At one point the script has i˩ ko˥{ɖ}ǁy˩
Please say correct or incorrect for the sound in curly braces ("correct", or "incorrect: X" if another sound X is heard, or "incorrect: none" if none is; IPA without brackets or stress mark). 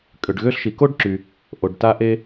correct